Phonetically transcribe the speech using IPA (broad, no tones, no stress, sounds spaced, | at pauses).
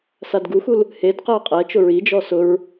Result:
s a d ɡ u x u l | h e d q ɛ ɐ̯ qʼ ɛ t͡ʃ ʊ ɹ i d͡ʒ ɔ s ʊ ɹ